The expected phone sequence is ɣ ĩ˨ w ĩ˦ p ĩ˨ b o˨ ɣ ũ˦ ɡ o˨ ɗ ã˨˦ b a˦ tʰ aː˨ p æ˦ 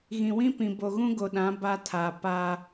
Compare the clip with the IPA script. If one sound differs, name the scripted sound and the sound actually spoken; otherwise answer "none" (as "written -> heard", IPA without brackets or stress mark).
æ˦ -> a˦